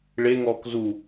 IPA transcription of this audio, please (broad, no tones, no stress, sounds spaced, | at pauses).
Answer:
ɭ e ŋ ɔː k z u